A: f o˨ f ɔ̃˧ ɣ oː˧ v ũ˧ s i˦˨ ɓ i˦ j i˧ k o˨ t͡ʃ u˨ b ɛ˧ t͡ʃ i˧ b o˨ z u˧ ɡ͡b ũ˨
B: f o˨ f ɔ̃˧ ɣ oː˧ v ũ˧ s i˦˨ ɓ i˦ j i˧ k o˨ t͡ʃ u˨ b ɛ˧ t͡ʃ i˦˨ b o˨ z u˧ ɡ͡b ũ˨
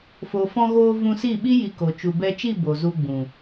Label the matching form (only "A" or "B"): B